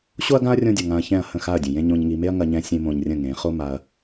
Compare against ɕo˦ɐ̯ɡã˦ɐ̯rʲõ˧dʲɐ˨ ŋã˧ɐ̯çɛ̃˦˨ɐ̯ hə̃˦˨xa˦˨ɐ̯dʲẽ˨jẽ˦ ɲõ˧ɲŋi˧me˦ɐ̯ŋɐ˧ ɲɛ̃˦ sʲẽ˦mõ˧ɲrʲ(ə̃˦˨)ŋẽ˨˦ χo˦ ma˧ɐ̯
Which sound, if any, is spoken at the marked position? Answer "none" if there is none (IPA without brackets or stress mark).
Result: ə̃˦˨